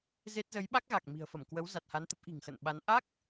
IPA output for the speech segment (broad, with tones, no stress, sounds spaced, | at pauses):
z e˦˥ t̚ z ə˨˦ j ɓ a˦˥ k̚ ɣ a˨˩ k̚ m i̤˨˩ ə̯ f ə˧˩ m k w ə˨˦ w z a˨˩ t̚ h a˨˦ n t̪ ə˦˥ p̚ ʔ i̤˨˩ ŋ x ə̰˧˨ n ɓ a˨˦ n ʔ a˦˥ k̚